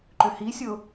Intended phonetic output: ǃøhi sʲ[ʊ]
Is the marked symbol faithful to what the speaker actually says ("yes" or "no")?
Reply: yes